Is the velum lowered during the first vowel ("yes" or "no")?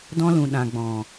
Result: yes